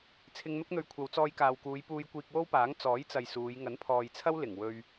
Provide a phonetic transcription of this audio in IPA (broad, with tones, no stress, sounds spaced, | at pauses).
t͡sʰ ɪ˧ ŋ n̪ ʊ˥ k̚ n̪ ɵ˧ ɥ kʷʰ ɐ˨˧ w t͡s ɔː˧ j k aː˨ w k uː˨˧ j p uː˧ j kʷ iː˧ k̚ w o˥ w p aː˨˥ ŋ t͡s ɔː˨˥ j t͡s ɐ˨ j s uː˨˧ j ŋ ɐ˨˥ n pʰ ɔː˨ j t͡sʰ ɐ˥ w l ɪ˨˩ ŋ w ɵ˧ ɥ